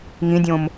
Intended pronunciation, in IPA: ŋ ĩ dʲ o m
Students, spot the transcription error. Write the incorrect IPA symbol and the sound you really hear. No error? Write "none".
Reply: o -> õ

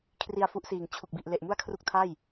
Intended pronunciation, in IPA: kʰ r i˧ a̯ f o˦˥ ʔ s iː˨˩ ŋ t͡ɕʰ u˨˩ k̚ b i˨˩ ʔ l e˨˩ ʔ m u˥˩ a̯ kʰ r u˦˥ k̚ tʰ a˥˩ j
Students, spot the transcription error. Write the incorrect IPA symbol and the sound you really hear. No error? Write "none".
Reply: o˦˥ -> u˦˥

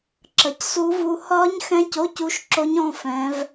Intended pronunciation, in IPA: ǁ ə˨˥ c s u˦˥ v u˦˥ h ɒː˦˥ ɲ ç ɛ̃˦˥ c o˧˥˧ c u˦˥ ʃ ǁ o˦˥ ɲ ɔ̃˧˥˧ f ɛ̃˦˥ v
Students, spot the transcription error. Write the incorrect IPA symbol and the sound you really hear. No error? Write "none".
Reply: ç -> x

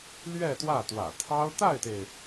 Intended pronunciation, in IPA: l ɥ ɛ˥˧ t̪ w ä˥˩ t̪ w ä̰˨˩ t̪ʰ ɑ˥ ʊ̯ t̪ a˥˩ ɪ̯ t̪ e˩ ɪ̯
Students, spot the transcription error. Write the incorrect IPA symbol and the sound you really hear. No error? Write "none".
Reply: none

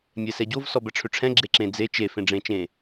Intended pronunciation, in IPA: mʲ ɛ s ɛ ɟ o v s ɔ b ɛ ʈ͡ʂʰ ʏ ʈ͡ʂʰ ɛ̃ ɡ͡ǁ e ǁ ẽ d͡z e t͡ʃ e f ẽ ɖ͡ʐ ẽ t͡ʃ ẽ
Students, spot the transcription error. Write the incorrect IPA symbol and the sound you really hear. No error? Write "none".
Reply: none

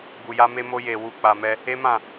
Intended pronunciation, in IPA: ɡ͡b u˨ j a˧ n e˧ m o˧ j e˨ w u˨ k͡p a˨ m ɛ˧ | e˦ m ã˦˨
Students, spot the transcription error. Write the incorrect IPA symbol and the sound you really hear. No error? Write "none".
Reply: n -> m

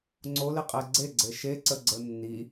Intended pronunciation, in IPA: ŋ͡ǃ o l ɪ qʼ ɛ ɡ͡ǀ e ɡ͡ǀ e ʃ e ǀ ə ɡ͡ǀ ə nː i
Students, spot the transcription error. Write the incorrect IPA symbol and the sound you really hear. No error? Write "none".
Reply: ŋ͡ǃ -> ŋ͡ǀ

